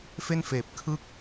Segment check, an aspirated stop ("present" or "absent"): present